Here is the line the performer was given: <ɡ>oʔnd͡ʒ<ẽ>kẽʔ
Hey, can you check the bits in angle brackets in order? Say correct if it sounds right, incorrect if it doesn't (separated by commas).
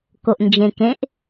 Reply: incorrect, correct